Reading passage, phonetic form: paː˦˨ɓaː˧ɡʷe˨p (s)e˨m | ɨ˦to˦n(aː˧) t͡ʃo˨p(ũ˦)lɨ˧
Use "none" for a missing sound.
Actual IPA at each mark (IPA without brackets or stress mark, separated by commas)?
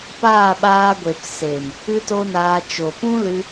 s, aː˧, ũ˦